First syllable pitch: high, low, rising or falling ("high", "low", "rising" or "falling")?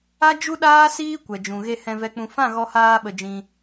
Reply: high